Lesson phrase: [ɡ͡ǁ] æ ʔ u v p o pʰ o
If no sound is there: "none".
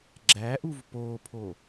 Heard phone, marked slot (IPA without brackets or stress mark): ɡ͡ǁ